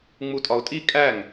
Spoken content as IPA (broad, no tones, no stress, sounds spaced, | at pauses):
ŋ͡m u tʼ ɒ ʊ̯ tʼ i kʼ æ ŋ